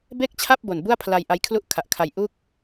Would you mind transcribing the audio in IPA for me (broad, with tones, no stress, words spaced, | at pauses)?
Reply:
be˥˩k̚t͡ɕʰa˥˩p̚ bo˨˩nbu˥˩a̯pʰla˧j ʔa˦˥jkʰlu˥˩ʔkʰa˨˩ʔkʰa˧j ʔu˥˩k̚